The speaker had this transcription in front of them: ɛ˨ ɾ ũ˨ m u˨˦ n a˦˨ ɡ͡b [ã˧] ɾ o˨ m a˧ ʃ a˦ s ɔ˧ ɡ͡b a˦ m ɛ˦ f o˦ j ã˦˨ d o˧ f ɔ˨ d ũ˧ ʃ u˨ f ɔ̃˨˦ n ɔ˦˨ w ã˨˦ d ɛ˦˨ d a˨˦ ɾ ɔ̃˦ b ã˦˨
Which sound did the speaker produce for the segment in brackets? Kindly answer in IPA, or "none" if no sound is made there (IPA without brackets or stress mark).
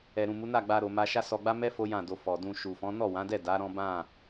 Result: a˧